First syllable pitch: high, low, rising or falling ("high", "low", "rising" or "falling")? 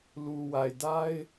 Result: low